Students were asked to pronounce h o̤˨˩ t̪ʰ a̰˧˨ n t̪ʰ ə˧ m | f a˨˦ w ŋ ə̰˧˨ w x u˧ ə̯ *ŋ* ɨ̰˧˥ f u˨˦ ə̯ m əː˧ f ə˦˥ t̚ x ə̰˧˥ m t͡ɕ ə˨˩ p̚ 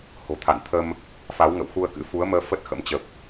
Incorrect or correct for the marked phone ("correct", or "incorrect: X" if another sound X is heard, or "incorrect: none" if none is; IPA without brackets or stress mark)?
incorrect: k